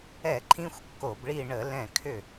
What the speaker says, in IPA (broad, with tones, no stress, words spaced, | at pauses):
ɛ˧˩˧ ǃʰĩ˥xʷkːo˧˩˧bɭi˥˧ ɳə˧˩˧lɛ̃˧˩ kʰʏ˧˩